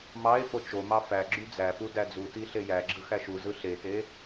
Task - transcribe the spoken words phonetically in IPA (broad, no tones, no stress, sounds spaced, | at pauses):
m ɑ e̯ f o t͡ʃ o m ɑ f æ ɡ͡ǁ y d͡z æ p u d æ d͡z u t i ɬ e j æ ɡ͡ǁ ɯ x æ ʃ u z ɯ ɬ e t e